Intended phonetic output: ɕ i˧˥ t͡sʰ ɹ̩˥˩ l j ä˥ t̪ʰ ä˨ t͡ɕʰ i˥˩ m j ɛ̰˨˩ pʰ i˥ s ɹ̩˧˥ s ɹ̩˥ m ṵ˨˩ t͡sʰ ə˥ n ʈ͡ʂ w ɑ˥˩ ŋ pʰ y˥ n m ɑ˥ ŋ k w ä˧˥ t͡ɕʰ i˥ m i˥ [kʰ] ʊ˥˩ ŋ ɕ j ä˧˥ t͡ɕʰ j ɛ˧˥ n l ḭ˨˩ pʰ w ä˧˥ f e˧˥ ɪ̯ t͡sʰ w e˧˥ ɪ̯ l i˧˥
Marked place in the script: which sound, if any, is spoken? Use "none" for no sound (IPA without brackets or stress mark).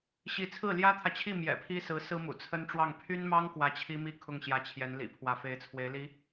kʰ